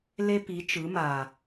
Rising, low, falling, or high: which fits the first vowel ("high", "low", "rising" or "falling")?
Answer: high